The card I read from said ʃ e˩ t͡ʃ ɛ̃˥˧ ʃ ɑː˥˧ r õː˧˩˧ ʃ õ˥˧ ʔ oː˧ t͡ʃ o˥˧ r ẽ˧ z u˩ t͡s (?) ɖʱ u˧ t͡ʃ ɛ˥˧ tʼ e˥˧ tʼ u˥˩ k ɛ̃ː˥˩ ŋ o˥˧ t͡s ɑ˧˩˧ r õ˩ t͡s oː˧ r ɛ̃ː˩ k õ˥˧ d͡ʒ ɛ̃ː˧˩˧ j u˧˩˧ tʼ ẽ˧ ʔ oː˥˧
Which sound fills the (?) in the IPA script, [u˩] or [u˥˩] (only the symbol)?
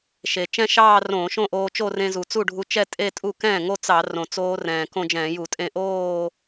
u˥˩